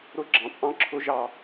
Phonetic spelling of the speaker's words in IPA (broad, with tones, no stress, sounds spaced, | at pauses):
ɾ ʊ˦˥ ɡ͡ǁ ɑ̃˩˥ t͡sʼ ɑ̃˦˥ ǁʰ ʊ˦˥ ʒ ɑ˦˨